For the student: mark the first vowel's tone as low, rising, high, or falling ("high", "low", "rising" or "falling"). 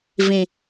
low